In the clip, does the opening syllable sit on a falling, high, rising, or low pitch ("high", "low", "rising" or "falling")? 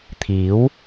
rising